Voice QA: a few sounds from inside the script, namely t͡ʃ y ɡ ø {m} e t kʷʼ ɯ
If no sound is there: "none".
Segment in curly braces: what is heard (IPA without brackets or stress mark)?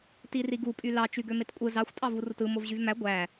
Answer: m